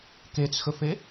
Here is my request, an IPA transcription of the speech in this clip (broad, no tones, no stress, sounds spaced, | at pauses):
k e t͡s x ɵ f e